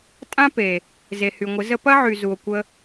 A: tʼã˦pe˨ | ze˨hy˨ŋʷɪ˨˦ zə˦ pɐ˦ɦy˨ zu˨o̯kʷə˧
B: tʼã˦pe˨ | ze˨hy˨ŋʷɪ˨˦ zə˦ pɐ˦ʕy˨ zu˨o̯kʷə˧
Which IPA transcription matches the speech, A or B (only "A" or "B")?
B